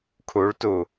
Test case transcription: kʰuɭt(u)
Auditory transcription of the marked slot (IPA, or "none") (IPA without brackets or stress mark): u